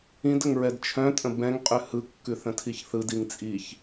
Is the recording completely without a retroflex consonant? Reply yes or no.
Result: yes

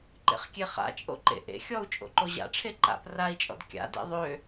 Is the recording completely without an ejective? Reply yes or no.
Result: no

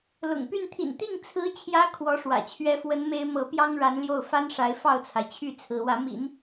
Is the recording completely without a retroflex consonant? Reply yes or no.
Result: no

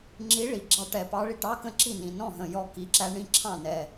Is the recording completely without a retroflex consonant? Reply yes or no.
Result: no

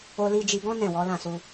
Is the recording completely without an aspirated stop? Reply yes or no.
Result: yes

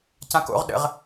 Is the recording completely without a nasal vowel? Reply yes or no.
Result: no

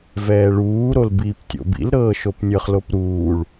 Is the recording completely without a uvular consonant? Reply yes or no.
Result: no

